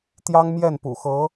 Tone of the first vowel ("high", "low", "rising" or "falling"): high